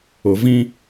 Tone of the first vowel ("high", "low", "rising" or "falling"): rising